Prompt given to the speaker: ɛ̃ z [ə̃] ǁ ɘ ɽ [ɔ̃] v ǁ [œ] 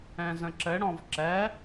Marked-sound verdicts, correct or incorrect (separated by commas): correct, correct, incorrect